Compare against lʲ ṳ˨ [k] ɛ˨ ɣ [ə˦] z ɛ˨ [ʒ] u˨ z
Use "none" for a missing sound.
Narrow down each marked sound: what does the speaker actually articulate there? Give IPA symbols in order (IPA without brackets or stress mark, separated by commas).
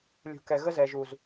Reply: k, ə˦, ʒ